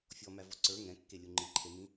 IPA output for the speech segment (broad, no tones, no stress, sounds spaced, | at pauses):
fʲ ɔ m æ v ɔ ǀ ə˞ ŋ ɛ̃ kː e lʲ u ŋ͡ǃ i ǃʰ e m ĩ